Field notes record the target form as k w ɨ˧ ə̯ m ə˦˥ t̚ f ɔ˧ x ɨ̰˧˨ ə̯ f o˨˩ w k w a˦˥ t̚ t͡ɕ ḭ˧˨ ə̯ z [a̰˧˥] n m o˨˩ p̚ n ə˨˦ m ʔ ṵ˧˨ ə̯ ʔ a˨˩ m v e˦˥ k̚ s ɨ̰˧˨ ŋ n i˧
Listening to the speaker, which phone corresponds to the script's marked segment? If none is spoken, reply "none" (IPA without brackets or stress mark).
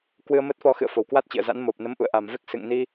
a̰˧˥